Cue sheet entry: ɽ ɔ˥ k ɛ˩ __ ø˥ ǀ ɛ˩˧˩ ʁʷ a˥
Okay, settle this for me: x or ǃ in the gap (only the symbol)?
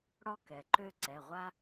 ǃ